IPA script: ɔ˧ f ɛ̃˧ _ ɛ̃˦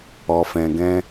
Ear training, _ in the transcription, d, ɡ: ɡ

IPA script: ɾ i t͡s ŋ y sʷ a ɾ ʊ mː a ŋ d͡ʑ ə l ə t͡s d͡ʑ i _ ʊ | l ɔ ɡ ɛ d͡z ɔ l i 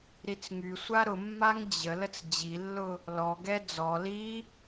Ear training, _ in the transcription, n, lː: lː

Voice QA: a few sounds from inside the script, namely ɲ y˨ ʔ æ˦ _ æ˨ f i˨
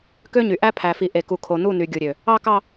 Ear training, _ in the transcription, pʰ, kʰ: pʰ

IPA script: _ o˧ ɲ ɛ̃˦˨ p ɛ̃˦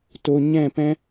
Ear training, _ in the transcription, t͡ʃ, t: t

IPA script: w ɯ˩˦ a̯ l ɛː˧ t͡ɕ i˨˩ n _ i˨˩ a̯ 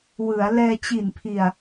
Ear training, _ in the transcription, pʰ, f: pʰ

